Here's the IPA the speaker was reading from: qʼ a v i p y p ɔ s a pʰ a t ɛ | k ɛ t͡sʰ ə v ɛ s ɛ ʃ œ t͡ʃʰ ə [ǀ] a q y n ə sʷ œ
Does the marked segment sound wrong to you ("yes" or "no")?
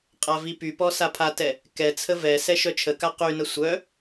yes